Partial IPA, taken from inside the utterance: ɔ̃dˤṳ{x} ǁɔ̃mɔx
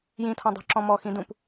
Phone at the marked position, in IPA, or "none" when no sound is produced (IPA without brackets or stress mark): none